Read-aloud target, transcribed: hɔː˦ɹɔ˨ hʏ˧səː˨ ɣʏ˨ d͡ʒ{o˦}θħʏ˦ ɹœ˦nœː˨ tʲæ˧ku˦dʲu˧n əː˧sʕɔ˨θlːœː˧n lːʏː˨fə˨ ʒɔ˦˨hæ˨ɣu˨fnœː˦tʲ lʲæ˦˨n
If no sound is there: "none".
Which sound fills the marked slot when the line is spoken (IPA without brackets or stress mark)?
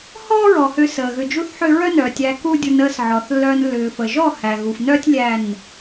u˦